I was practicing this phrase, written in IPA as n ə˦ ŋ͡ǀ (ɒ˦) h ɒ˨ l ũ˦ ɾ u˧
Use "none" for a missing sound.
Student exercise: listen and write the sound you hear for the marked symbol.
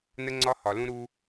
ɒ˦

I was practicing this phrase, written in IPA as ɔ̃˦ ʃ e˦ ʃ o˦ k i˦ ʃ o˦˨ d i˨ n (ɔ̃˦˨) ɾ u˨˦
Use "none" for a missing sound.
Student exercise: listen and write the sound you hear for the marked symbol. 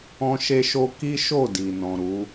ɔ̃˨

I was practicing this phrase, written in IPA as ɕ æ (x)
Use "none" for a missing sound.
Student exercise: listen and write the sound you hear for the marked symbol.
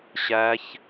ç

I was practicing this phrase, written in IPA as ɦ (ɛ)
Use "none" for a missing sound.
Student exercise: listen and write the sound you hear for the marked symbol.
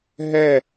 ɛ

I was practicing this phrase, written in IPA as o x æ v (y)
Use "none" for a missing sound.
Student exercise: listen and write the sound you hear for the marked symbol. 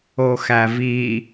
i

